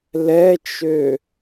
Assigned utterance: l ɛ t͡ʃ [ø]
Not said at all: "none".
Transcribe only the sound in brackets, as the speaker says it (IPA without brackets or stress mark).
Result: ø